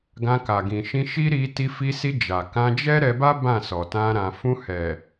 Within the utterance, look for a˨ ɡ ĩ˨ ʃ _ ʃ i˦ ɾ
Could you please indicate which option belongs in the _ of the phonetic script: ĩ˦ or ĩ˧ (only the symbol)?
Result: ĩ˧